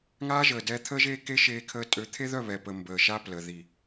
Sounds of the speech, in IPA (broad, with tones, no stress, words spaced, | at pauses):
ŋaː˦ʒəː˨dɛ˦ t̪ʰəː˦ʒeː˦ke˦ ʃeː˦kʰəː˦ tʼø˨˦t̪ʰe˦ðœ˦˨ βɛ˨pə˨ mbəː˨ʃa˦ plə˨ ði˨